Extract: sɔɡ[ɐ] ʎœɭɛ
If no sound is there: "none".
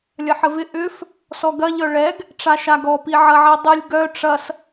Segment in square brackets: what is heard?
ɐ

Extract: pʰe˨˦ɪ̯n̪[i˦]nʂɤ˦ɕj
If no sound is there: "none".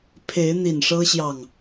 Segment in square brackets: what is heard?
i˨˩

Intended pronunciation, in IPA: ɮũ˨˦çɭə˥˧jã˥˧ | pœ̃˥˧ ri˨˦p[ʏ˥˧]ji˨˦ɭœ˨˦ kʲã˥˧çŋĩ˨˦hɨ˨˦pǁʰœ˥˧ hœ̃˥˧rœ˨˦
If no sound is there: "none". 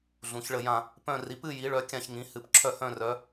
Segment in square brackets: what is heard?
ɨ˥˧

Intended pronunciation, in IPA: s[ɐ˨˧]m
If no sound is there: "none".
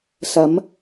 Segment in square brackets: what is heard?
ɐ˨˧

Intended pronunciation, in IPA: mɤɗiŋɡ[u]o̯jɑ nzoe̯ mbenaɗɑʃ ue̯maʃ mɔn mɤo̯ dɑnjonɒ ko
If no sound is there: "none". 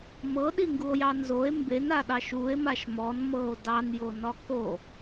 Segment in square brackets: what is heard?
u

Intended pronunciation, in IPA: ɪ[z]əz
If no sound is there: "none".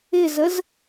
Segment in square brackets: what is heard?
z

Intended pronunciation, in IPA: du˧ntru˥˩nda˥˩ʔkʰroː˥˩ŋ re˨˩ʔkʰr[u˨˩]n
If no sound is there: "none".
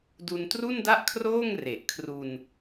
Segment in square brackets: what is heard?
u˧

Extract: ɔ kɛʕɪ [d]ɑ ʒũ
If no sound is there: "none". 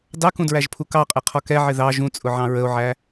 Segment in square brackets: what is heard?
ð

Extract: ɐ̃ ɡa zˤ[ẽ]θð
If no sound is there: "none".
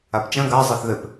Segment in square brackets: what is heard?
e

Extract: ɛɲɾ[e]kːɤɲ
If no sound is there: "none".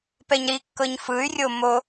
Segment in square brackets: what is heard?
i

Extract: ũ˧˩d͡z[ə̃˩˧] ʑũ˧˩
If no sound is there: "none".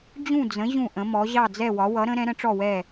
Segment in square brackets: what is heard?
ə̃˩˧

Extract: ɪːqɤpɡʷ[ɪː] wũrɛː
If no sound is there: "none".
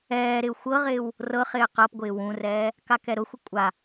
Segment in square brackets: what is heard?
ɪː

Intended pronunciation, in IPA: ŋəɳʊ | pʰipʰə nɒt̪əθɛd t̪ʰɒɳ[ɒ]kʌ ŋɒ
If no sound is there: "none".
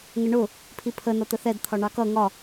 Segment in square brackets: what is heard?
ɑ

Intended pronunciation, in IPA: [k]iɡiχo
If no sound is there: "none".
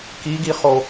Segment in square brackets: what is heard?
k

